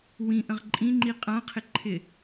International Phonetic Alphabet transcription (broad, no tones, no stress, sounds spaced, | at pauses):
w ĩ ʔ ə̃ ʁ ǃʼ ĩ ŋ͡ǃ i qʼ ã qʰ ɪ ǃʰ ɪ